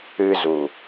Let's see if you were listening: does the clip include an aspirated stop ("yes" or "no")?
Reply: no